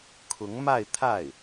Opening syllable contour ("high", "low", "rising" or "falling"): rising